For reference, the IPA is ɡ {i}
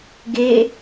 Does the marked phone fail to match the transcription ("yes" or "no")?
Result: yes